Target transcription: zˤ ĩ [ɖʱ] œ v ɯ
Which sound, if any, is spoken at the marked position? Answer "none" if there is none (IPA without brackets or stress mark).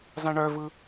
ɳ